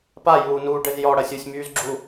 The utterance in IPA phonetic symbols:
p a j uː n uː ɖ ɘ z j ɔ ɽ ɐ sʲ u sʲ m yː z ɡ͡ǁ u

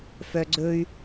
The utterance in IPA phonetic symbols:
f œ ɡ͡ǀ ɵ y̯

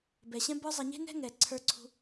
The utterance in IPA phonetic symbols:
b ɛ˨ ɕ ɛ̃˦ b ə˞˦ zˤ ɛ˧ ɲ e̤˦ n ɛ̤˦ ŋ ɛ˨ ǀʰ ə˞˧ ǀʰ ṳ˧

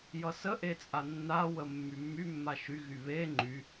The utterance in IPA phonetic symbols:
j ʌ s ə ʔ e t͡sʼ a nː a w ə mː y mː y mː a ʃ y ɣ y β e ŋ͡ǃ y

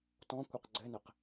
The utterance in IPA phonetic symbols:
t ɔ̃ kʷ ɨ q ɡ͡ǀ ɘ n ɘ q

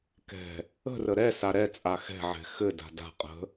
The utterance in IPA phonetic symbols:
k ɛ̤ | ə̤ r ə ɾ ɛ s a ɾ ɛ t͡sʼ a x ɛ̤ ʕ ɛ̤ x ɘ d a̤ d a̤ qʼ ə̤

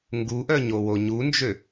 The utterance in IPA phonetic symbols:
ŋ ɡ u ʔ œ ɲ o w o ɲ u n d͡ʒ ø

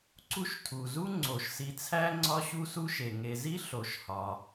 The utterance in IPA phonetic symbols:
ǀ u˦ ʃ tʰ u˩ z u˥ ŋ͡ǀ o˩ ʃ s i˨ t͡sʰ æ˥ ŋ͡ǀ ɒ˦ ɕ u˦ s u˦ ʃ e˩ ŋ e˨ z i˥ ɬ o˩ ʃ h ɒ˩

